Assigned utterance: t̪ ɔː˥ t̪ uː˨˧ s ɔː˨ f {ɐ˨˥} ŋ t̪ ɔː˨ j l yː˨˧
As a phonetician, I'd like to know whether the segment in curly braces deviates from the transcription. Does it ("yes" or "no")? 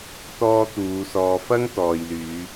yes